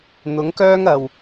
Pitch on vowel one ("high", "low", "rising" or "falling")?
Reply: rising